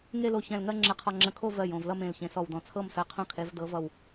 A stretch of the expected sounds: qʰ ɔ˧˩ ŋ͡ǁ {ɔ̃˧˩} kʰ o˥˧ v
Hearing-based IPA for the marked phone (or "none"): ə̃˧˩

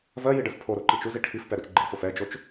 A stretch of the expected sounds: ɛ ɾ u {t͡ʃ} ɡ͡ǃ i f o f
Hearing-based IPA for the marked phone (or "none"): t͡ʃ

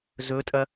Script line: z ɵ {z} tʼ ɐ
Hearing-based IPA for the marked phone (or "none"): none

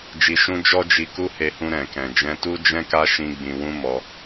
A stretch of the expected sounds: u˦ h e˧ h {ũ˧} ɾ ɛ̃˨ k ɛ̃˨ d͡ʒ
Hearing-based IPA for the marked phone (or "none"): ũ˧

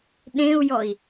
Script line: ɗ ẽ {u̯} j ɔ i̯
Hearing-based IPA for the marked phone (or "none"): u̯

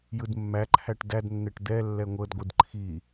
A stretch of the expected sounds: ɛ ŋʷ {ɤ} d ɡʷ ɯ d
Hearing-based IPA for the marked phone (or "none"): ɤ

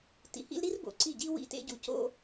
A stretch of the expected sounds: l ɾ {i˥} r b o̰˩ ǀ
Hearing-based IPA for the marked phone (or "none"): i˥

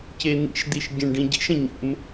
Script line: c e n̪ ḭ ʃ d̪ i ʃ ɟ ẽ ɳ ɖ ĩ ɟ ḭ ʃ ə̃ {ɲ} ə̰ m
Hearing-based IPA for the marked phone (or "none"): ɲ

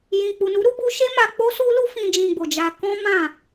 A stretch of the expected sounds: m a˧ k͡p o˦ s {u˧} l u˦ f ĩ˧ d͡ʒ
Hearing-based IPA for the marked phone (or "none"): u˦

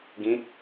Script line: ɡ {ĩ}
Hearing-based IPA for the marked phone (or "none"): ĩ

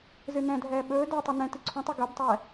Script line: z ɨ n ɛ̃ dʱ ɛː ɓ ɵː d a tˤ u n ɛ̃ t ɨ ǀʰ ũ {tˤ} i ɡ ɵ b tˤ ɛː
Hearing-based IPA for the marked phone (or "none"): tˤ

